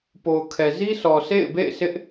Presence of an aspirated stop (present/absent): present